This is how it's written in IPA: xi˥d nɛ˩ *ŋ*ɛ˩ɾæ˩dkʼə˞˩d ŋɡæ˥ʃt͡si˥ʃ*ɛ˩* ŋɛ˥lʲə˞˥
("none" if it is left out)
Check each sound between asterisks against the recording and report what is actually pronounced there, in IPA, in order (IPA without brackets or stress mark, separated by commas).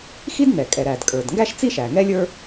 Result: kʼ, æ˩